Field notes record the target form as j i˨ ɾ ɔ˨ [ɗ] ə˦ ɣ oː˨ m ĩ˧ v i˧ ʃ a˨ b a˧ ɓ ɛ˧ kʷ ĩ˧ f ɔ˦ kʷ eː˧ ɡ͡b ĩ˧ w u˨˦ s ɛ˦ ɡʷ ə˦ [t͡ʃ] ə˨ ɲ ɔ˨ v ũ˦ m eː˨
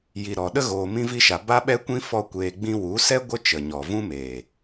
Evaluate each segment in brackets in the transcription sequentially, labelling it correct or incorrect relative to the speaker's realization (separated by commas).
correct, correct